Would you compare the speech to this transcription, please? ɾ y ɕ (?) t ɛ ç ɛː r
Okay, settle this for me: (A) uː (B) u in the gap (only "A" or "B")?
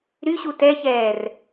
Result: B